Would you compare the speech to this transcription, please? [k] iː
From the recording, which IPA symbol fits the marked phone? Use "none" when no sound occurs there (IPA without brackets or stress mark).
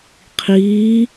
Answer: qʰ